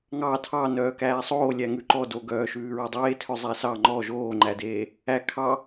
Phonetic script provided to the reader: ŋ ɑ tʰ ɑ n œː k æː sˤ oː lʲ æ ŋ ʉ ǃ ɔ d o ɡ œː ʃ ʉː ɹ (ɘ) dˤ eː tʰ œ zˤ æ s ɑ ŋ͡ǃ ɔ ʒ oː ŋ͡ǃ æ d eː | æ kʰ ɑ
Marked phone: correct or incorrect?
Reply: incorrect: ʉ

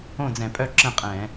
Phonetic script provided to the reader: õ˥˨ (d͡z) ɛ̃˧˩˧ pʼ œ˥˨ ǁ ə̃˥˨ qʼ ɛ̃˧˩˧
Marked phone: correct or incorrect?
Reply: correct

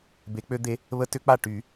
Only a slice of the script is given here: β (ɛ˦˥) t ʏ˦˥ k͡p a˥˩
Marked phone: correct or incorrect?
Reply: incorrect: ə˦˥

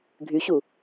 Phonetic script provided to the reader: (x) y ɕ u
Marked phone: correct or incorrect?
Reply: incorrect: ɡʱ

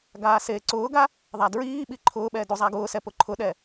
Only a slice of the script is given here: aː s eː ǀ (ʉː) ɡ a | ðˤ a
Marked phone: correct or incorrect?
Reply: incorrect: ʊː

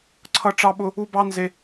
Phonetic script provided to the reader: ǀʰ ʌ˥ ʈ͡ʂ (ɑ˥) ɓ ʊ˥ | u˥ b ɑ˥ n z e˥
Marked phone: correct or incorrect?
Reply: correct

